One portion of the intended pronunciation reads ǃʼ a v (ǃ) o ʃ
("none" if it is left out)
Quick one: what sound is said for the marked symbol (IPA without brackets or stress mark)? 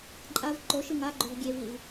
ǃ